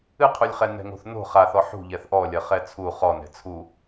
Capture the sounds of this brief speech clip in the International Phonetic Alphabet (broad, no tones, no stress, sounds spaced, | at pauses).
ɨ qʰ u lʲ χ ɛ n ɛ̤ ŋ o̤ θ n o̤ χ a θ ɔ ħ ṳ ʎ ɛ θ ʔ ɔ lʲ ɐ χ ɛ t͡sʰ u χ ɔ n ɛ̤ t͡sʰ u